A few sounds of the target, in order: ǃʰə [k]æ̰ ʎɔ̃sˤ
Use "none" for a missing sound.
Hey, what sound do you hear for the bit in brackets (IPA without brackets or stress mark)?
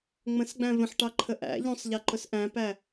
ʔ